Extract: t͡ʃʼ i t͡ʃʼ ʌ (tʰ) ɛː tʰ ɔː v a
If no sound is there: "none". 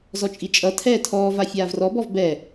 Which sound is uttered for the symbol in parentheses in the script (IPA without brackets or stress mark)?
tʰ